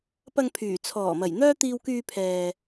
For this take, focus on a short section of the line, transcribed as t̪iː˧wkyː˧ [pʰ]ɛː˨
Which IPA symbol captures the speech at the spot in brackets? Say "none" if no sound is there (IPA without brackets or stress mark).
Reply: pʰ